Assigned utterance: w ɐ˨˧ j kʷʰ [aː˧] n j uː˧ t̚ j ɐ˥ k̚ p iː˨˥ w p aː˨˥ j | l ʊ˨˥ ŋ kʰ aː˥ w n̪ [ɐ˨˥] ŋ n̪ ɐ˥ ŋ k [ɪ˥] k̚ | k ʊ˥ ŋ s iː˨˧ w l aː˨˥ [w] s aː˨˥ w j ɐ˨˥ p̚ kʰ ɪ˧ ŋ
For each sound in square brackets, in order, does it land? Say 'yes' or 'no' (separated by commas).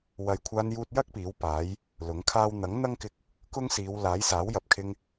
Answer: yes, yes, no, no